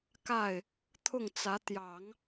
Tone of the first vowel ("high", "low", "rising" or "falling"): falling